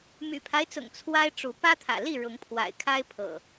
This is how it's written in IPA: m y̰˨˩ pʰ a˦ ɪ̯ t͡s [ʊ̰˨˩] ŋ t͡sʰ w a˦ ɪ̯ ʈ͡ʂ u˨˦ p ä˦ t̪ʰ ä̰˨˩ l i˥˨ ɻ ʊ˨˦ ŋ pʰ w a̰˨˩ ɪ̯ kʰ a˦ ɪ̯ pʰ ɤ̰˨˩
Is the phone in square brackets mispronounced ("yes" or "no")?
no